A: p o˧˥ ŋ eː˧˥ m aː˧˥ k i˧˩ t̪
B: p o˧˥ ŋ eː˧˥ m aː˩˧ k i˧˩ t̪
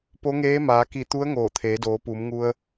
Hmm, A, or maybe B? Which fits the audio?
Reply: B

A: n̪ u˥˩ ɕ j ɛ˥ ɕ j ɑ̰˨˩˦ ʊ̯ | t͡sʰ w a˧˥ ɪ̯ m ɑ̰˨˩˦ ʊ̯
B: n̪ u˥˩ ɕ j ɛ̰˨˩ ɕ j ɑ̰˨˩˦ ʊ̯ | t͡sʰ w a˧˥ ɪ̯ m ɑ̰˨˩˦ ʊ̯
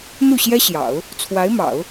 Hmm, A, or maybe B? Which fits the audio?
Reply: A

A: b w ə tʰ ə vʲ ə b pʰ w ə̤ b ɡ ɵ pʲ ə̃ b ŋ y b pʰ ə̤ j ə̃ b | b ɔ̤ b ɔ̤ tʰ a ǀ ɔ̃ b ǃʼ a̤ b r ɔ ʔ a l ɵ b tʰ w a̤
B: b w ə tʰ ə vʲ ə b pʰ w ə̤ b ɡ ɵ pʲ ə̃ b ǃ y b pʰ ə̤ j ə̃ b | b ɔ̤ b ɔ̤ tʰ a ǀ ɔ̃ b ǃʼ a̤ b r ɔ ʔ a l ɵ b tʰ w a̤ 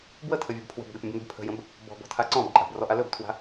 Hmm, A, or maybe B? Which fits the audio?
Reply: A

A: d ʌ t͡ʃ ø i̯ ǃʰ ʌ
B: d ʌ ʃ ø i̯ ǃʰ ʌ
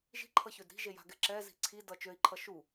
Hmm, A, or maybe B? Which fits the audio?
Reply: A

